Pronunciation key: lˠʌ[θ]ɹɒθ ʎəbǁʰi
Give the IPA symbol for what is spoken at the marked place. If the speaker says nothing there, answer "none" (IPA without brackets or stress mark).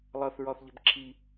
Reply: θ